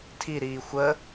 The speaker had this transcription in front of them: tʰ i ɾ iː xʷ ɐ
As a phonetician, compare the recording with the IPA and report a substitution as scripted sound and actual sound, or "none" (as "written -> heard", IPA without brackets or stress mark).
ɐ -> ə